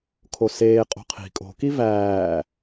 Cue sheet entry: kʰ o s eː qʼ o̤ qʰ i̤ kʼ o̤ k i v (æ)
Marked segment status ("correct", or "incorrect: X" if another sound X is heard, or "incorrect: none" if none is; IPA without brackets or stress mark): incorrect: æː